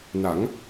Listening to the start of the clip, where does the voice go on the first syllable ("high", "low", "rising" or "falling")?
rising